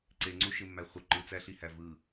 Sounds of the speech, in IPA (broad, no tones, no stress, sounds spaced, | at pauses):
ǀ e ŋ͡ǀ u ʃ ɪ mː æ χʷ ə ǃ ɯ t͡s æ ɬ i h æ v ɯ